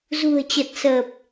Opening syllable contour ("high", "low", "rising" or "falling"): low